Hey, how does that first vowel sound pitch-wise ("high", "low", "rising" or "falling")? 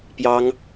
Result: high